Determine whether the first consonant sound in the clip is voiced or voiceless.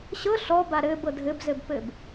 voiceless